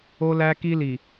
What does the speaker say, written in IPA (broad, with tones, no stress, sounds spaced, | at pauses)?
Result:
o˦ l æ˦ k i˦ l i˨